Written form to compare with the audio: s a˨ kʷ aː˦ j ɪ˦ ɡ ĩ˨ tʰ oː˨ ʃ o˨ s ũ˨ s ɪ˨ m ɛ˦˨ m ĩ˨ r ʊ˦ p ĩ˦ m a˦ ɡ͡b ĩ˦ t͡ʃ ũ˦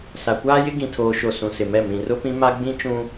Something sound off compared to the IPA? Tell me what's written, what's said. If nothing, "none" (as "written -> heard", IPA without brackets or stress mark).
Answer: none